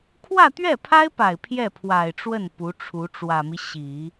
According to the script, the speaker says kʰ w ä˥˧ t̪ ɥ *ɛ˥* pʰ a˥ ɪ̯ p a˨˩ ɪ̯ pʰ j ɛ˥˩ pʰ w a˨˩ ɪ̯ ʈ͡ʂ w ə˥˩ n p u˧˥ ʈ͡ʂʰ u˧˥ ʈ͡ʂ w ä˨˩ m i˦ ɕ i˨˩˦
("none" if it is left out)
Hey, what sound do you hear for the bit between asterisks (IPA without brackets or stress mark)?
ɛ˥˩